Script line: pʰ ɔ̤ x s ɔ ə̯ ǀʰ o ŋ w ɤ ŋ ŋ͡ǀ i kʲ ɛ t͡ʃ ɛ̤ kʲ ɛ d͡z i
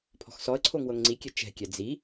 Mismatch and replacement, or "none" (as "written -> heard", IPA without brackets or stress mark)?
none